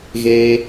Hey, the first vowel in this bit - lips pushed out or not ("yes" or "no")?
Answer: no